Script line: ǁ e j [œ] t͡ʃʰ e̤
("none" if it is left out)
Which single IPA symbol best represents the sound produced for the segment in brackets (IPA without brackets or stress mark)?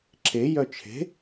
œ